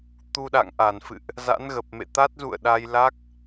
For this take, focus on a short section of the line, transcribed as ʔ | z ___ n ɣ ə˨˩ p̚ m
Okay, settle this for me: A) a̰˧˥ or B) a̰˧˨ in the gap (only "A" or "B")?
A